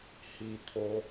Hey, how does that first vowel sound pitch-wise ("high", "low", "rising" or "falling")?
low